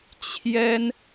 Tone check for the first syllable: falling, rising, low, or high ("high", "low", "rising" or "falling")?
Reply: high